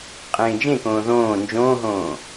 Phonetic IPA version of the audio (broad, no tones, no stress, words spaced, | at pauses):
qʼẽːd͡ʒẽkõː ðõː nd͡ʒõːɦõː